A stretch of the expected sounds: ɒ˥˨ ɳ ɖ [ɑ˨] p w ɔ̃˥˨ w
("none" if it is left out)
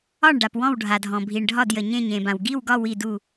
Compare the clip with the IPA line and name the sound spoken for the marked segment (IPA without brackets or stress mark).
a˨